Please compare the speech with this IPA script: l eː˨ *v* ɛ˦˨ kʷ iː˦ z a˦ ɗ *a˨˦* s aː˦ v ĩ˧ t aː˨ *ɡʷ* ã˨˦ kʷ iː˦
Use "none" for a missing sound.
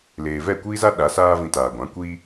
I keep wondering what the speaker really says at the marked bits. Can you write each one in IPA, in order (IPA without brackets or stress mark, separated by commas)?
v, a˨˦, ɡʷ